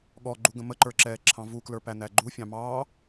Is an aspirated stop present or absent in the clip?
present